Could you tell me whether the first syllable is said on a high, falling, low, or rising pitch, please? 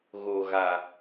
low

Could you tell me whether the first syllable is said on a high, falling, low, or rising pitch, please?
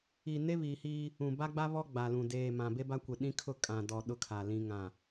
low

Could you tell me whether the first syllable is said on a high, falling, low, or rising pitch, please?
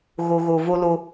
low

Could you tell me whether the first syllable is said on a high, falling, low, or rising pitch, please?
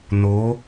rising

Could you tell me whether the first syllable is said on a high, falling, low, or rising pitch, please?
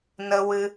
high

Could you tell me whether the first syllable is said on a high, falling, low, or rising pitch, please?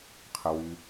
low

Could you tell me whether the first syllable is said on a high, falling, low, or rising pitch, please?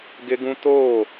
high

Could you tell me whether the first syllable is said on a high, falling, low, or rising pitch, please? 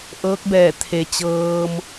rising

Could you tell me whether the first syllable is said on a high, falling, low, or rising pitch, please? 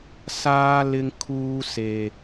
high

